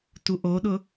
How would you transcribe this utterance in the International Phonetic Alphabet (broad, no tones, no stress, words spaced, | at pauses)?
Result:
tuʔoɗʊ